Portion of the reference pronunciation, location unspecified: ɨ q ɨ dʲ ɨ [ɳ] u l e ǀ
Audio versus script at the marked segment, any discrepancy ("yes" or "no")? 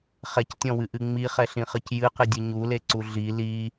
yes